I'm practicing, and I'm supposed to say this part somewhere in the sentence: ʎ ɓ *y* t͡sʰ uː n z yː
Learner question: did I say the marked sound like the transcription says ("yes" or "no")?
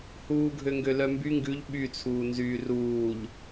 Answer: yes